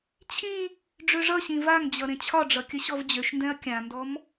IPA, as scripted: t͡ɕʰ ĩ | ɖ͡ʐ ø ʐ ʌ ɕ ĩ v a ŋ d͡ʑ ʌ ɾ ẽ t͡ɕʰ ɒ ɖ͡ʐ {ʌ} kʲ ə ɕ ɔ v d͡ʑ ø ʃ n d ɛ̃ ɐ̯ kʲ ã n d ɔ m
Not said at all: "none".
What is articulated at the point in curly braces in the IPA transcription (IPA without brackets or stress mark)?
ʌ